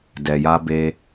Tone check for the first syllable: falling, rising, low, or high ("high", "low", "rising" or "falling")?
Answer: low